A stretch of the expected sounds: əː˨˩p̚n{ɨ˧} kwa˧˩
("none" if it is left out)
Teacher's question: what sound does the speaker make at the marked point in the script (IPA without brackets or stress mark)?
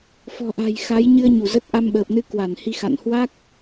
ɨ˧